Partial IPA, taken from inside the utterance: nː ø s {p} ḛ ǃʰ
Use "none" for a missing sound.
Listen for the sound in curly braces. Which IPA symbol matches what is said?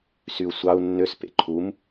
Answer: p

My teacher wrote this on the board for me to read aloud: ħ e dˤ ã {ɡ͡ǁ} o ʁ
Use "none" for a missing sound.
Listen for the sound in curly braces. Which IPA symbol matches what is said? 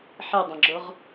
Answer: ɡ͡ǁ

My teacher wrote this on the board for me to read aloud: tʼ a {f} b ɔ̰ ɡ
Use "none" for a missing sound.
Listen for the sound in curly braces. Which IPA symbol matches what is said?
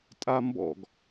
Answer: m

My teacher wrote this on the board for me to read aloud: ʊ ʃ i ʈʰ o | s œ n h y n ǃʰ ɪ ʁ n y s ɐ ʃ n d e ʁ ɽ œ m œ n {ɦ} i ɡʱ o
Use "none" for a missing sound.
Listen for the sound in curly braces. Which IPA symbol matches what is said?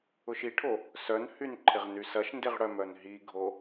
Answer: ɦ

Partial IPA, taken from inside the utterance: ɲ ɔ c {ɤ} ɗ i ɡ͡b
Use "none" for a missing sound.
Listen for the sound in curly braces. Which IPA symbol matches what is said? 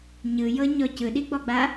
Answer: ɯ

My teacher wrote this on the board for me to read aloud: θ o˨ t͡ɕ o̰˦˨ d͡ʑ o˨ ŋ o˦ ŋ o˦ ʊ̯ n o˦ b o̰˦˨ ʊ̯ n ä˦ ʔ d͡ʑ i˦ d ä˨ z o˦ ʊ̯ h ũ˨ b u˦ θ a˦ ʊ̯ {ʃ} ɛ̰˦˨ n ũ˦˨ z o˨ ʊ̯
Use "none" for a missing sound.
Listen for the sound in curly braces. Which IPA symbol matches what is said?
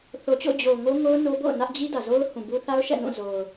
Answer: ʃ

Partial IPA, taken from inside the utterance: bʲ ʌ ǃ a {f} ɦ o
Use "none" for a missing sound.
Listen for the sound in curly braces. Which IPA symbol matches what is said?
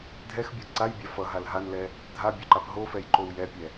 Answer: p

